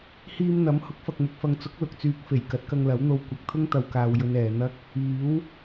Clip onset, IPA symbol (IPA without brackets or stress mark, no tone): h